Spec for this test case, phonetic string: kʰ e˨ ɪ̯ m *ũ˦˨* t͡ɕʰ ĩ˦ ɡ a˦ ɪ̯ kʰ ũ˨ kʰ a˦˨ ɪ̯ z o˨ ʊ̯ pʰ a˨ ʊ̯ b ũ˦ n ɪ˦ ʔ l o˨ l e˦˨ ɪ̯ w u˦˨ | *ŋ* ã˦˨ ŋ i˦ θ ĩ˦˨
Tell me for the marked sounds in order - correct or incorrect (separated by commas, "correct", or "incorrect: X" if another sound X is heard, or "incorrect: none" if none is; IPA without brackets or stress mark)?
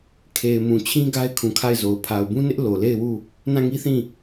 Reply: incorrect: ũ˨, incorrect: n